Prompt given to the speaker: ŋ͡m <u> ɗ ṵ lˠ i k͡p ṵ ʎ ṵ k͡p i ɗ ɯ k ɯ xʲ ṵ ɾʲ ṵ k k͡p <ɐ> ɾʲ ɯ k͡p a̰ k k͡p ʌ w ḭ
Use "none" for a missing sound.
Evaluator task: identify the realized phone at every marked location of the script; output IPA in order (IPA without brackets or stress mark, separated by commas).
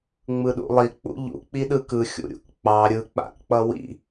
ɯ, ɑ